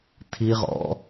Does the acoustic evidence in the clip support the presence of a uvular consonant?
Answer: yes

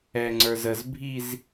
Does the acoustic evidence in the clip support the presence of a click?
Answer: yes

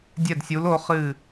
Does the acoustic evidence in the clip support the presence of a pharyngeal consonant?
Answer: no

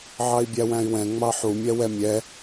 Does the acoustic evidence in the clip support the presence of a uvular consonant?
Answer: no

